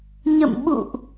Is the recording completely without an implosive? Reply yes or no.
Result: no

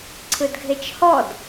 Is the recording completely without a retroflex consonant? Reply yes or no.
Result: yes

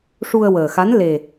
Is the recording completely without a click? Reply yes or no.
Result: yes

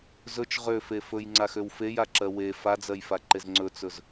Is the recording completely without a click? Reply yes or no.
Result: no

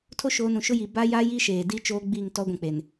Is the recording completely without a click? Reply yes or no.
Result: yes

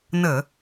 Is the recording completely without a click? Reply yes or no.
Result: yes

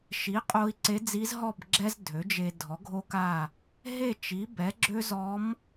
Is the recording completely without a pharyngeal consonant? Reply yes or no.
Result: yes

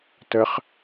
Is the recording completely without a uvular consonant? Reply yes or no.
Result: no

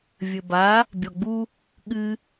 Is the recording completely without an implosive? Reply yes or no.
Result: no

